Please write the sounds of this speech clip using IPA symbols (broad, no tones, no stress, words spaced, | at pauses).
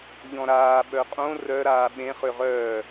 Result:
ʎɔ̃ɾaː ɓœqʼõ rœ ɾaːɓẽ χøʁœː